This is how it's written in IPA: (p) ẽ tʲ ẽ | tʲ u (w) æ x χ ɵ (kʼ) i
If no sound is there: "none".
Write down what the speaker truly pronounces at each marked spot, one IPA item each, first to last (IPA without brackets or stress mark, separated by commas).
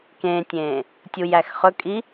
k, j, kʼ